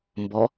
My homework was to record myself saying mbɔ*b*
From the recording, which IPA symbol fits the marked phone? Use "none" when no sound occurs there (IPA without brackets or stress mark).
none